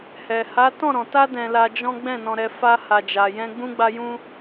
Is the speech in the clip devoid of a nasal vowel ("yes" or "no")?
no